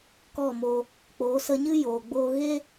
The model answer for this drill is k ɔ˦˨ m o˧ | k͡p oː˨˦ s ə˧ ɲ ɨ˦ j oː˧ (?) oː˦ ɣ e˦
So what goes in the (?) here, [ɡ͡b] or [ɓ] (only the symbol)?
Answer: ɡ͡b